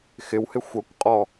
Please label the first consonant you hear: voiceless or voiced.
voiceless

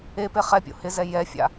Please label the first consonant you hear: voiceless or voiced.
voiceless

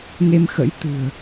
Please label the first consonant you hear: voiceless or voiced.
voiced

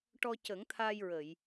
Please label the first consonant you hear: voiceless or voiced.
voiceless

